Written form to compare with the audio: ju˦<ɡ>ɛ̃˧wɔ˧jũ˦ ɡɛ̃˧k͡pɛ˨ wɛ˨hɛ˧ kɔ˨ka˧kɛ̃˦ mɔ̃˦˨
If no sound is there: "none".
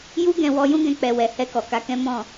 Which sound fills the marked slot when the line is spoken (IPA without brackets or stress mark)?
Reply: ɡ